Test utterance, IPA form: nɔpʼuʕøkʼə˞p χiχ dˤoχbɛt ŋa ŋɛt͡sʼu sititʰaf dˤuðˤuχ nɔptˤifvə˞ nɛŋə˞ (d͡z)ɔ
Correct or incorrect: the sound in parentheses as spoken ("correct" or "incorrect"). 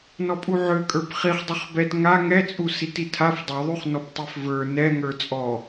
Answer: incorrect